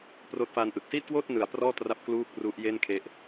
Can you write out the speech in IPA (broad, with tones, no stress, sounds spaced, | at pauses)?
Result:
p r oː˦˥ t̚ f a˧ n ʔ ɯ˨˩ k̚ s iː˥˩ t̚ k w oː˥˩ t̚ n ɯ˩˦ a̯ p r ɔː˥˩ t r a˦˥ p̚ k l uː˥˩ k̚ r u˦˥ ʔ j e˥˩ n kʰ e˦˥ ʔ